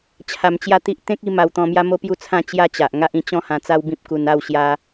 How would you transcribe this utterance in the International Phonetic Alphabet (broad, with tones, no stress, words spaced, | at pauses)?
t͡ɕʰa˧mt͡ɕja˦t̪i˦ʔ t̪ẽ˦k̚ i˥˧ ma˧wt̪ɔ̃˧mja˦ mo˥˧pju˥˧t͡sʰã˥˧ t͡ɕja˥˧t͡ɕa˨ʔŋa˦ʔ ĩ˧t͡ɕɔ̃˥˧hã˧ t͡sa˦wbĩ˦p̚ku˧na˥˧w ɕja˦